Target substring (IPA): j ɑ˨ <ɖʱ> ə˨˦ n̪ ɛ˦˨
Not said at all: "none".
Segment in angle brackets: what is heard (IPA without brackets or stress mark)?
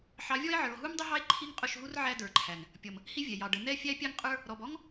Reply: ɖ